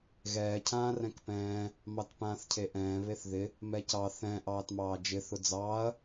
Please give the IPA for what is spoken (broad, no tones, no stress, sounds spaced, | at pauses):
ɣ ɛː cʰ ãː r ɛ̃ k p ɛ̃ː | m ɑ t p ãː θ cʰ e ʔ ɛ̃ː β e θ ð ɪ | m ɛ c ɑ θ ɛ̃ ʔ ɑː t m ɑː d͡ʒ ɪ θ ʊ d͡z ɑː ɐ̯